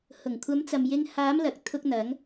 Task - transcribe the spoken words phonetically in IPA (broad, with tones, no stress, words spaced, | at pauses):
hʊ˨˩ŋkʷʰɐ˨˧mt͡sɐ˨mjɪ˧ŋ haː˨˧mlɐ˨k̚t̪ʰʊ˧k̚n̪ɐ˨˧ŋ